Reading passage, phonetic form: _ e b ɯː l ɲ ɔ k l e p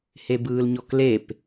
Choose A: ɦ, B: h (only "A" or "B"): B